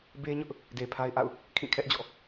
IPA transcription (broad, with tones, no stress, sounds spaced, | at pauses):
b e˦ ɲ ʊ˦ ʔ | d e˨ pʰ a˦ ɪ̯ ʔ a̰˦˨ ʊ̯ | kʰ ĩ˦˨ kʰ ɛ˦ ʔ d͡ʑ ɔ̰˦˨